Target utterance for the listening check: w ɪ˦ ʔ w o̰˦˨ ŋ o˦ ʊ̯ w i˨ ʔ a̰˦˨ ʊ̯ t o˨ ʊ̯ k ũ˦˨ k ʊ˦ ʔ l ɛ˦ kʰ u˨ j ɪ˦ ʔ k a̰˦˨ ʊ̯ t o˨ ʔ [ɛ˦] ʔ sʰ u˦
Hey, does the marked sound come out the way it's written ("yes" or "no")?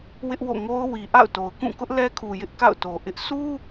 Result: no